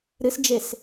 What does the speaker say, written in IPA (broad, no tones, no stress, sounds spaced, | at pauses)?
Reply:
ɾ ɨ s d͡ʒ e s